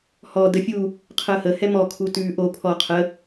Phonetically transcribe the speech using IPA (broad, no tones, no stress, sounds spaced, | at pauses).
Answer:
h ɔ d ə fʲ u | qʰ əː h ə h ɛ m ɔ kʰ u t ʉː ʔ o pʰ ɔ qʰ ə